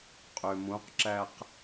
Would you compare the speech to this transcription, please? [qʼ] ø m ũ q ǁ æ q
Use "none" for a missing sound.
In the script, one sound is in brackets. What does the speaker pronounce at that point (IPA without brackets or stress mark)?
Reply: qʼ